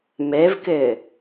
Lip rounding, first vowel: unrounded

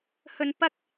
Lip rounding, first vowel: rounded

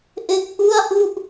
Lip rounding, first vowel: unrounded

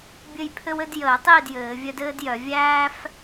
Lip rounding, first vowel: unrounded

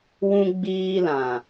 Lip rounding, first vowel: rounded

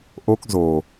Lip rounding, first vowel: rounded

